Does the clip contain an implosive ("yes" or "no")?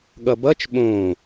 yes